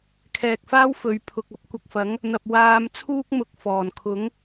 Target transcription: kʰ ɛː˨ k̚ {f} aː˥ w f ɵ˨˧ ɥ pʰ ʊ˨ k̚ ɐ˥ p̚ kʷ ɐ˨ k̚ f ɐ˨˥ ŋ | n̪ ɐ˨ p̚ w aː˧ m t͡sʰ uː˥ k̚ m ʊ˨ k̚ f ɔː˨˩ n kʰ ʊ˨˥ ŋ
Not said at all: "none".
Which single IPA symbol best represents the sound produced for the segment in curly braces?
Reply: f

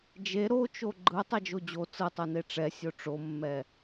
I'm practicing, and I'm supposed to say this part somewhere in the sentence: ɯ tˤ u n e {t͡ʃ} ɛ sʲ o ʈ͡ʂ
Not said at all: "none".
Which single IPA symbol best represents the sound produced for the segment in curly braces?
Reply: ʈ͡ʂ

